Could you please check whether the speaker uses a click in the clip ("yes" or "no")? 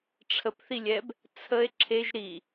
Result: yes